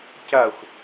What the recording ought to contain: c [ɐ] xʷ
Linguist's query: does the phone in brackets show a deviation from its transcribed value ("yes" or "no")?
no